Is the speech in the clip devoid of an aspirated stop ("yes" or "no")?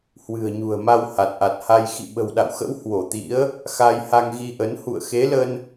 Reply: yes